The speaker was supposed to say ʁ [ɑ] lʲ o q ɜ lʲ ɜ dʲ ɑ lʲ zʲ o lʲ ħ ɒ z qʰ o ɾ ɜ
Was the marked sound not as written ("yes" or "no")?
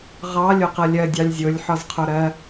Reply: no